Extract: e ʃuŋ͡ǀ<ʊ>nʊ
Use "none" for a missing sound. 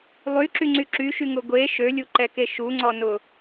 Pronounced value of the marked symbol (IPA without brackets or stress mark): ɔ